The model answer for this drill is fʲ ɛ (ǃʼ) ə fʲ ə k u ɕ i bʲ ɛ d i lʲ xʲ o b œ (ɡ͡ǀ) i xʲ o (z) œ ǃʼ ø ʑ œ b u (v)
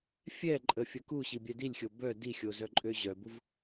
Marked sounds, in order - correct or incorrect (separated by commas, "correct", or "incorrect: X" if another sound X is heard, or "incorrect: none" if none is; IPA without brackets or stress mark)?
correct, incorrect: d, correct, correct